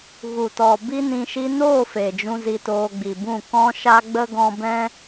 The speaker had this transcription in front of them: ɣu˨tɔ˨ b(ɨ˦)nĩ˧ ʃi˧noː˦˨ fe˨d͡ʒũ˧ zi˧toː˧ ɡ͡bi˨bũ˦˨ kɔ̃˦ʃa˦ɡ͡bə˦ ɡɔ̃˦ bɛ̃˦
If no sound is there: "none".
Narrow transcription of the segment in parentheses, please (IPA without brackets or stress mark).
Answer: i˦